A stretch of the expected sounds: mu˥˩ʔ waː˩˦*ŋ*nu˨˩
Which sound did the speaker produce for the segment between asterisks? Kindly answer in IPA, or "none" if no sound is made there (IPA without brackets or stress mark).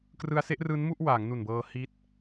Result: ŋ